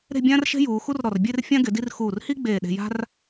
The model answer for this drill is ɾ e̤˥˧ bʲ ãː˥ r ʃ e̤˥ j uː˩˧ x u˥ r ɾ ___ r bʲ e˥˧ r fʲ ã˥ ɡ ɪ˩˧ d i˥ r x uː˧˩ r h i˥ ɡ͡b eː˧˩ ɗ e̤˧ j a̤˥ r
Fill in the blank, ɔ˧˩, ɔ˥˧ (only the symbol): ɔ˧˩